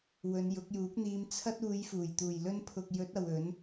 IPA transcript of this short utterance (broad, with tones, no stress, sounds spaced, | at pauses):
w ɵ˨˧ n j ʊ˨˥ k̚ j uː˨˥ k̚ n̪ iː˧ m t͡sʰ ɐ˧ t̚ uː˨˧ j f uː˨˩ j t̪ uː˨˩ j l ɵ˧ n pʰ ʊ˨ k̚ j ɵ˨˥ t̚ ɐ˨ w ɵ˨˥ n